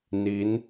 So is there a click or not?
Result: no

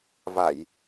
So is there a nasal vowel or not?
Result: no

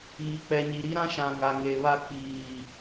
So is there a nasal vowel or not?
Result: yes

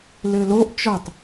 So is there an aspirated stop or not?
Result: no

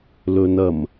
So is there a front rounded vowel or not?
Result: no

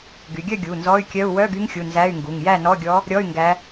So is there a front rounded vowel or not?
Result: yes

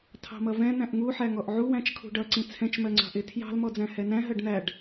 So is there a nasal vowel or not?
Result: yes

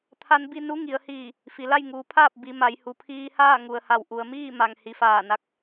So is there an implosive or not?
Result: no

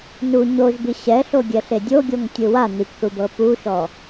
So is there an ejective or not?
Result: no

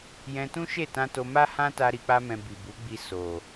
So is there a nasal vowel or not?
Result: yes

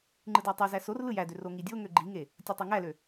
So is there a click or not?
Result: yes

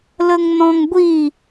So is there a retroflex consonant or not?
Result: no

